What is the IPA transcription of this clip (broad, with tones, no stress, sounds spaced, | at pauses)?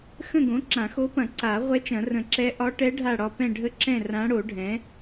x ə̃˦˨ ɡ õ˩˥ ǁ ã˨˩˦ x o˧˥ p ɐ̃˨˩˦ ǀ a˨˩˦ ʁʷ ɛ˧˥ t͡ʃ ɐ̃˨˩˦ r ə̃˨˩˦ ǁ ɛ˧˥ ʔ ɒ˧˥ ʈ ɛ˧˥ ɖʱ a˦˨ ɽ ɒ˦˨ p ɛ̃˦˨ ɖʱ ə˦˨ ǁ ɛ̃˦˨ r ã˧˥ ɽ o˨˩˦ ɖʱ ɛ̃˩˥